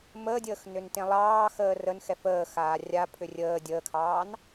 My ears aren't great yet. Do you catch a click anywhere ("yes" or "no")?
no